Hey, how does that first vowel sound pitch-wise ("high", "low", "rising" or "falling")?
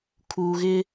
low